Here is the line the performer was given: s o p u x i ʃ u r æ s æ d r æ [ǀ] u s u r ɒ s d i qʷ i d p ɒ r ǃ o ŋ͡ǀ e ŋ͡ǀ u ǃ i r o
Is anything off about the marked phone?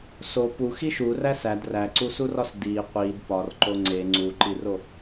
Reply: no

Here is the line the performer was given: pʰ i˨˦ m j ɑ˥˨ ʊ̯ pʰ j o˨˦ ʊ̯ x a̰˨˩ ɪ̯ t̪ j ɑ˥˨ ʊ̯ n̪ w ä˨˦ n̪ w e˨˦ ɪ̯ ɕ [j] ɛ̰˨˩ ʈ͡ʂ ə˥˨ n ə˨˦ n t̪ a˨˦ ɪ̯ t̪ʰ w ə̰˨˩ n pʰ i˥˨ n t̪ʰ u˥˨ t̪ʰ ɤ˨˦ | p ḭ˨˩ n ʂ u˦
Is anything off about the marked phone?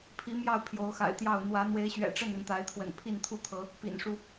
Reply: yes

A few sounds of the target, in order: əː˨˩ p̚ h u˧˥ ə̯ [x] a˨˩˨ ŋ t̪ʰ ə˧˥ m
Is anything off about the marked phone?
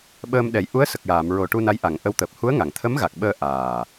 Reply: yes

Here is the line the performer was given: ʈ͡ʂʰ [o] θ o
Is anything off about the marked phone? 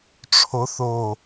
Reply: no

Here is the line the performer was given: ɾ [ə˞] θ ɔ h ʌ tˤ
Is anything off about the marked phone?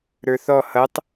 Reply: no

